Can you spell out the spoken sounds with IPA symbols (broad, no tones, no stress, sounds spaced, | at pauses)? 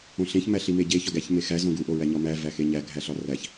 õ ɬ ẽ ç m æ ɬ i m e ɟ e ç ɒ ɡ æ ç m e x æ z õ ɡ u ʔ o ɹ æ ɲ ɒ m æ v æ x e ɲ æ ɡʱ æ ɬ ɒ r æ ç